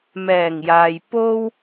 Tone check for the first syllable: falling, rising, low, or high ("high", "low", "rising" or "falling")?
low